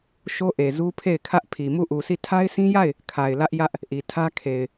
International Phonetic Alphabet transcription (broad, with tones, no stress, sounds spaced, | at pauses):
ʃ o˦ ʔ e˨ z u˦ pʰ e˦˨ ɪ̯ kʰ ä˦ ʔ pʰ i˨ m u˦˨ ʔ u˨ sʰ i˦˨ tʰ a˦ ɪ̯ sʰ ĩ˦ j a˦˨ ɪ̯ | kʰ a˨ ɪ̯ l ä˦ ʔ j ä˦ ʔ | ʔ i˨ tʰ ä˦ kʰ e˨ ɪ̯